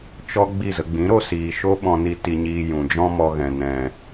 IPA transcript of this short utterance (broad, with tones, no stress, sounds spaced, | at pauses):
t͡ʃ ɔ˦ ɡ͡b i˦˨ z ə˧ ɡ͡b ĩ˨˦ ɾ o˧ s iː˨ ʃ o˦ ɓ ɔ̃˧ n i˧ t i˧ ɲ iː˧ j ũ˨ d͡ʒ ɔ̃˦ m ɔ˧ ɣ ɛ̃˨ n ɛ̃˨